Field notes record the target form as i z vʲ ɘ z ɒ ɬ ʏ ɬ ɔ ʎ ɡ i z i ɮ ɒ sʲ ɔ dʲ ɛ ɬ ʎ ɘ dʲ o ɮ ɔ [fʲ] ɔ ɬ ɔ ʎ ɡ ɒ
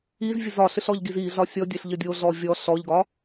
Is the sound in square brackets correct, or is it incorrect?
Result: incorrect: vʲ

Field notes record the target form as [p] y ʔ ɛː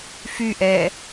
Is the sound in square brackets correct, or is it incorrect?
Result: incorrect: f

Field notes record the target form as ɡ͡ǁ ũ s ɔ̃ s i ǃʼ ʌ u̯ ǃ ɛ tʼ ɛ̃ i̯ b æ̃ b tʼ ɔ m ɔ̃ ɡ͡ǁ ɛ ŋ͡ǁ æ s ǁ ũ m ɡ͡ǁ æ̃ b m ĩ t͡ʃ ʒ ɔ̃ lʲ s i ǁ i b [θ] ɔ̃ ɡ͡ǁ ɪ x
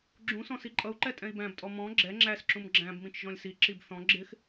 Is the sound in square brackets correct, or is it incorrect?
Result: correct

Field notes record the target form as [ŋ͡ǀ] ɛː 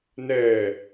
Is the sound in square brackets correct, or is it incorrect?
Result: incorrect: n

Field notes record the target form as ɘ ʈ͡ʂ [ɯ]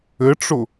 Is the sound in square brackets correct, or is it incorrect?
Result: incorrect: ʊ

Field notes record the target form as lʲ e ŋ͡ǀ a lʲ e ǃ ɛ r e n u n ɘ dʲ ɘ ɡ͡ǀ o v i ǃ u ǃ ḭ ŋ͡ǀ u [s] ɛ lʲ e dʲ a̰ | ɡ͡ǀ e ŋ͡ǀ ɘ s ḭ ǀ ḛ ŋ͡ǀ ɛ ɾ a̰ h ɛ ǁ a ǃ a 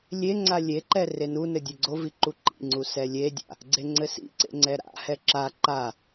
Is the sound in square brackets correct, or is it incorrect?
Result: correct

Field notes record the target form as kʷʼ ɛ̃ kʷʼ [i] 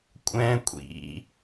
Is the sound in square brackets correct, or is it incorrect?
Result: incorrect: ḭ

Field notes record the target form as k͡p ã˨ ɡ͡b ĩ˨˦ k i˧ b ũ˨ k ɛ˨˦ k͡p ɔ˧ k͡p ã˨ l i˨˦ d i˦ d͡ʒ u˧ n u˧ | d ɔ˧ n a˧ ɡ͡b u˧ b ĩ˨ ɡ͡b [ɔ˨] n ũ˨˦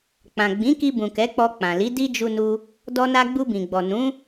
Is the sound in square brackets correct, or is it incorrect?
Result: correct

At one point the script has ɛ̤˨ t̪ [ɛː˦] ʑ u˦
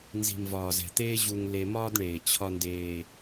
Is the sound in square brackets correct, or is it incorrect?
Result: incorrect: eː˦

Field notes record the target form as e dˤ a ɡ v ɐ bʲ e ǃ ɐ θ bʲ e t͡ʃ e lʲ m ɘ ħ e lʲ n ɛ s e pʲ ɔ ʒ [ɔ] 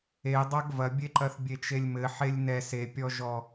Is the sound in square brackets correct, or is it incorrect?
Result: correct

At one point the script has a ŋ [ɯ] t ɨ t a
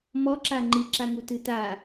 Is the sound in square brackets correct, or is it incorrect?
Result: incorrect: u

